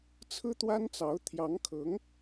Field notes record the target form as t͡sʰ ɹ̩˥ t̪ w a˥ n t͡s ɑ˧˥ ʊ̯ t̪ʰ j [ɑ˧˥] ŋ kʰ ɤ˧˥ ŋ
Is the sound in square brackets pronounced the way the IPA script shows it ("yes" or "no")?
yes